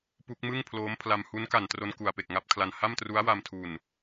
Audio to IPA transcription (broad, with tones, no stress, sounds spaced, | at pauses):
p u˦˥ k̚ m ɯ˥˩ ŋ pʰ l oː˦˥ m pʰ l a˧ m h u˦˥ n k a˨˩ n t r o˧ n k u˨˩ a̯ p e˨˩ k̚ ŋ a˦˥ p̚ kʰ l a˧ n h a˥˩ m t r u˦˥ a̯ w a˧ m tʰ u˨˩ n